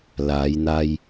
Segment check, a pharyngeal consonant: absent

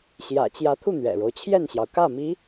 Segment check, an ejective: absent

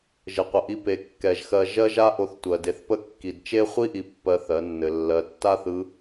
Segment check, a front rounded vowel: absent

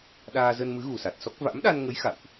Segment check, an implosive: present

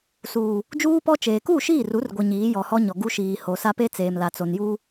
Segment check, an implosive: absent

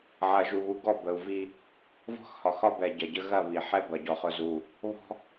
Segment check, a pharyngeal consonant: present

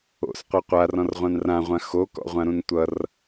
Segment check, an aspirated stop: absent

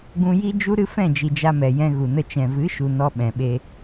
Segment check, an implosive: present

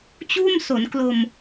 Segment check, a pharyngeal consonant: absent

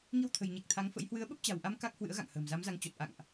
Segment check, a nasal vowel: absent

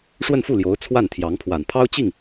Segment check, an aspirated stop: present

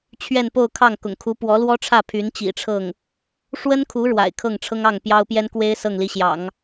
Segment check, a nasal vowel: absent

